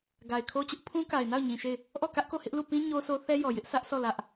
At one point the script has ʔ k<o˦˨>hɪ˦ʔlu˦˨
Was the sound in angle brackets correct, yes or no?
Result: yes